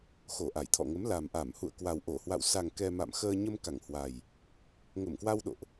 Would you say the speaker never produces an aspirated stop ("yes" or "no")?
no